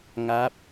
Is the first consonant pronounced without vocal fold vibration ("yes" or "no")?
no